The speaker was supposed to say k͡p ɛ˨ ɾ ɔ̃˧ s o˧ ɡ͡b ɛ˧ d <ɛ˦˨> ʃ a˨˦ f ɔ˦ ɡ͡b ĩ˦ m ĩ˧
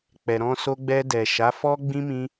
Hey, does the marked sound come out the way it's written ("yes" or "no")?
no